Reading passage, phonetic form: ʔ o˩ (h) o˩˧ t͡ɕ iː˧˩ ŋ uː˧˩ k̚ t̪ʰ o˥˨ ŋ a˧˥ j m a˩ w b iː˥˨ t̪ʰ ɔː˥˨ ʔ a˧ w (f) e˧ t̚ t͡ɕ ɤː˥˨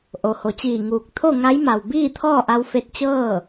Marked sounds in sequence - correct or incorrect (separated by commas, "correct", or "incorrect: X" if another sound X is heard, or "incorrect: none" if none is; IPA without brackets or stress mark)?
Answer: correct, correct